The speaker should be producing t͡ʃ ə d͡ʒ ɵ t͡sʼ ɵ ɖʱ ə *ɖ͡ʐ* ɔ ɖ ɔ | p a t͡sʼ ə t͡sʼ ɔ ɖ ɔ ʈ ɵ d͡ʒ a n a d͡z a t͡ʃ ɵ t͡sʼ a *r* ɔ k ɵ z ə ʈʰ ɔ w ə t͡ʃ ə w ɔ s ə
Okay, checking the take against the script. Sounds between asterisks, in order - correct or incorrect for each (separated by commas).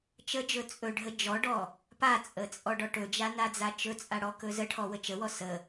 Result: incorrect, incorrect